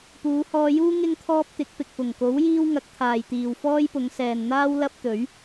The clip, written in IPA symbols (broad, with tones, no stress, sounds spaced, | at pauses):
p uː˨˧ h ɔː˧ j uː˥ ŋ ɪ˥ ŋ t̪ʰ ɔː˥ p̚ t̪ ɪ˨˥ k̚ p ɪ˨ k̚ f ʊ˨˩ ŋ k o˨˥ w j iː˥ w ŋ ɐ˨˥ k̚ t̪ʰ aː˨ j t̪ iː˨ w f ɔː˥ j p ʊ˨˧ ŋ s ɛː˨ n n̪ aː˥ w l ɐ˥ p̚ t̪ ɵ˨˥ ɥ